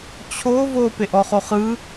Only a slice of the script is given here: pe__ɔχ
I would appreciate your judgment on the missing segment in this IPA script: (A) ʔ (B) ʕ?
A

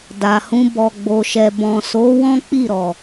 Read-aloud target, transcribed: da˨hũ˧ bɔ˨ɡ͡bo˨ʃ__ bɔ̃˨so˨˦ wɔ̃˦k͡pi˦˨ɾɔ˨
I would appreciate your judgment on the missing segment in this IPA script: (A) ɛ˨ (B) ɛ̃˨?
A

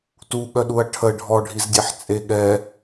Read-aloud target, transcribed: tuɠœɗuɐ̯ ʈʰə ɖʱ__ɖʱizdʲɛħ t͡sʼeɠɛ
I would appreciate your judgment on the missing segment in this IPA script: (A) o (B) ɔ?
B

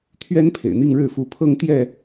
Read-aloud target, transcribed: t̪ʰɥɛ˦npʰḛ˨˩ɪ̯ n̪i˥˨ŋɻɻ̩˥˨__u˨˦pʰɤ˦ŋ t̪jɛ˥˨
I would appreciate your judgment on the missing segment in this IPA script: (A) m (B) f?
B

